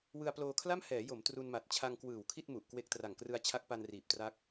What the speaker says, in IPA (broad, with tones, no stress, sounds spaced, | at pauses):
w ɯ˧ a̯ p l oː˧ kʰ l a˥˩ m h ɛː˩˦ j o˩˦ m t r u˧ n m a˨˩ t̚ t͡ɕʰ a˧ ŋ k w ɯː˨˩ w kʰ i˥˩ t̚ m u˨˩ ʔ k w e˦˥ k̚ t r a˨˩ ŋ k r ɯ˦˥ a̯ t͡ɕʰ a˦˥ k̚ p a˧ n r iː˨˩ p̚ t r a˦˥ k̚